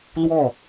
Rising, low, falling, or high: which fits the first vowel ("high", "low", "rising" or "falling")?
falling